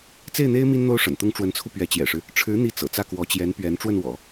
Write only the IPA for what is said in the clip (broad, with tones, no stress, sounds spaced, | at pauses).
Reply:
t͡s e˥˩ ɪ̯ n̪ e˥ ɪ̯ m i˥ n n̪ o˥ ʊ̯ ʂ ə̰˨˩ n t̪ ʊ˥ ŋ ʈ͡ʂ w ə˧˥ n t͡sʰ u˧ p ɥ ɛ˧˥ t͡ɕ j ɛ̰˨˩ ʂ ɻ̩˦ | ʈ͡ʂʰ ɻ̩˧˥ n̪ i˥˩ t͡s ɤ̰˨˩ t͡s ä˥˩ k w ɔ˧˥ t͡ɕ j ɛ˧˥ n p ɥ ɛ˧˥ n ʈ͡ʂ w ə˥˩ n w ɔ̰˨˩˦